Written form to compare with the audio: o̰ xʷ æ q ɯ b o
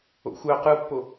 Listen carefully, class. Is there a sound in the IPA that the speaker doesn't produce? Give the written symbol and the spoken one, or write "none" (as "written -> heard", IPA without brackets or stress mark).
b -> pː